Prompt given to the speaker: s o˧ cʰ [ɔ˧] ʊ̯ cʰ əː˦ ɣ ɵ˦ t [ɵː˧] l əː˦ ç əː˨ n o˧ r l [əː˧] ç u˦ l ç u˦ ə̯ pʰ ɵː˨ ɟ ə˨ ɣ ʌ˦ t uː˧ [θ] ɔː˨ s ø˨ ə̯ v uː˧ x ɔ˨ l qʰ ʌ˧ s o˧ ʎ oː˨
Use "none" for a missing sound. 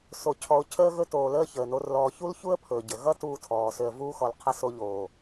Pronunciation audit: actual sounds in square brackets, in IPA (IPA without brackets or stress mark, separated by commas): ɔ˧, oː˧, ɔː˧, tʰ